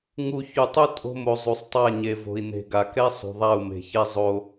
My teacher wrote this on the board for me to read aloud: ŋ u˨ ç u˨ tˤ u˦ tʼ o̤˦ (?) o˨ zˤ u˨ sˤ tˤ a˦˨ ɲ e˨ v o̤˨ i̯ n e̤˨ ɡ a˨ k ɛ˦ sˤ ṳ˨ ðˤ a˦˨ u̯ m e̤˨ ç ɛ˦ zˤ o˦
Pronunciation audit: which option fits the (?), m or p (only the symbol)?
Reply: m